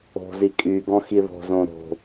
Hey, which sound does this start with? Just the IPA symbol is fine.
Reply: o̤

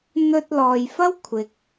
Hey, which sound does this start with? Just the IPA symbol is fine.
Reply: n̪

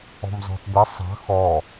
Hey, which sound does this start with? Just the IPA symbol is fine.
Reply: ɔ̤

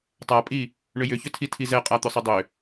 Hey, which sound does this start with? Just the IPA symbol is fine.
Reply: tˤ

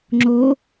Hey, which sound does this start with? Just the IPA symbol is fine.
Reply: ŋ͡ǁ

